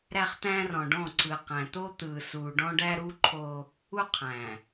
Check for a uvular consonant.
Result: present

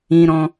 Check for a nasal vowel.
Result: present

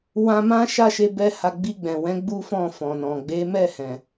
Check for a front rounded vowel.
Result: absent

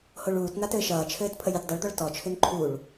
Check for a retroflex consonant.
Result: present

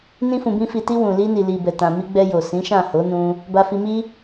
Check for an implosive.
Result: absent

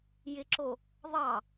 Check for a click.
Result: present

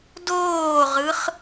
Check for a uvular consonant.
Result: present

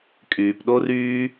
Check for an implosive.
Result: present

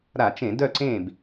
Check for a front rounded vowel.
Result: present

